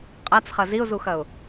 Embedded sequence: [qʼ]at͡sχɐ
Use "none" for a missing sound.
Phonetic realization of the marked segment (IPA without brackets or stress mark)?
qʼ